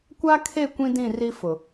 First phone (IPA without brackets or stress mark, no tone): kʷ